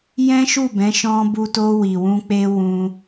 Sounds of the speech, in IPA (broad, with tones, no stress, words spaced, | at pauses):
jɛ̃˦ʃu˦˨bɛ̃˨˦ ʃɔ̃˧bu˧to˧ wi˨wũ˧ k͡pe˧ wũ˧